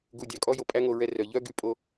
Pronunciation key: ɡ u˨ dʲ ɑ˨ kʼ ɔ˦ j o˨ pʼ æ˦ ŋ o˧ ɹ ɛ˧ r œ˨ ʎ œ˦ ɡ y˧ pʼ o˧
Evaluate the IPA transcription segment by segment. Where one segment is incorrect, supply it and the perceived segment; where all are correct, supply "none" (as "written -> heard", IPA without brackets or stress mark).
none